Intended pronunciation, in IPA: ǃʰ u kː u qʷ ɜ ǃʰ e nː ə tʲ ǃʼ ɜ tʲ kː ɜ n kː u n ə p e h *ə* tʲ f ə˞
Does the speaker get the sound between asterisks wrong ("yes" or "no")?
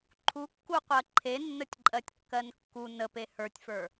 yes